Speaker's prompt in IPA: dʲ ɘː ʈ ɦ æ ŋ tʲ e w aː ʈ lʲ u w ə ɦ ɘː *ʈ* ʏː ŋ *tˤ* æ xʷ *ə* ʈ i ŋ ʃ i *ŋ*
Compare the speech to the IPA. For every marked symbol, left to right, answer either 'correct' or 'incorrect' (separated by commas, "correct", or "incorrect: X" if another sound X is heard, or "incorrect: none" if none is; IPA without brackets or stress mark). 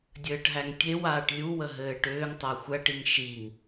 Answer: correct, correct, incorrect: æ, correct